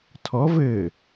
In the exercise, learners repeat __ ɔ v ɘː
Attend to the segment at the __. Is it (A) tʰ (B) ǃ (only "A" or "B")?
A